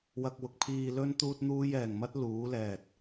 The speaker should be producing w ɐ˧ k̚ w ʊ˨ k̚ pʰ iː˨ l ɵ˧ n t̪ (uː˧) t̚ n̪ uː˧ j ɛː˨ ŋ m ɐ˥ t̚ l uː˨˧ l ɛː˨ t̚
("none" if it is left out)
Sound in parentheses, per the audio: uː˧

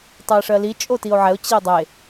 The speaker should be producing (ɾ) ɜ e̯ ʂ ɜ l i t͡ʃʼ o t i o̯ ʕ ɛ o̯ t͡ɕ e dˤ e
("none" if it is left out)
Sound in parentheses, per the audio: tˤ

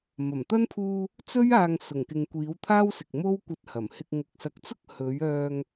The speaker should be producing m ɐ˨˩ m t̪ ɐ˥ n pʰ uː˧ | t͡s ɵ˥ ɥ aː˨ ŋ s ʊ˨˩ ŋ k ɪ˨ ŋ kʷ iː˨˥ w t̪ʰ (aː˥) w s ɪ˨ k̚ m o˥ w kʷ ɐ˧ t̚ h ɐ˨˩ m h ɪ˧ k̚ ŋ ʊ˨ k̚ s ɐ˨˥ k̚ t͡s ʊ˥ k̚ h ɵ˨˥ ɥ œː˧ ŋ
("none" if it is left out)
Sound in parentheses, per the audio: aː˥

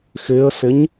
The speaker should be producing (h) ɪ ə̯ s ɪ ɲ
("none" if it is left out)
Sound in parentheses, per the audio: x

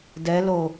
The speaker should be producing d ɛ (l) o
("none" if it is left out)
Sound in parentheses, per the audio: l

